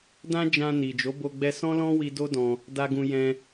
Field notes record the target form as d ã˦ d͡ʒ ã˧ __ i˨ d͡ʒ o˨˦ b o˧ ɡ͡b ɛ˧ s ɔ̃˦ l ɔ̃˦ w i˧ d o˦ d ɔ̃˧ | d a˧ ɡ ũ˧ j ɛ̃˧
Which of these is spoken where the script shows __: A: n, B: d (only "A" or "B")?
A